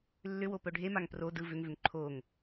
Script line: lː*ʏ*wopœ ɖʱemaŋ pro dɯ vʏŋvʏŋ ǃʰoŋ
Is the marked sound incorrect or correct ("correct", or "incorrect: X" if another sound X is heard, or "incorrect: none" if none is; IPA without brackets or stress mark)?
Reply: correct